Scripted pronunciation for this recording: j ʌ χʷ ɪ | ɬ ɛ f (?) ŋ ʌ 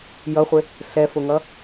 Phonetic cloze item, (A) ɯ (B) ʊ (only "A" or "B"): B